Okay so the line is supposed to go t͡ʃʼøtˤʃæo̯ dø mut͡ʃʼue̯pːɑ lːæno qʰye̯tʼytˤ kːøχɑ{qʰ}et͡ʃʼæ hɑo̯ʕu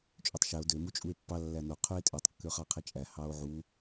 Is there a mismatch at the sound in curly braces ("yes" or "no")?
no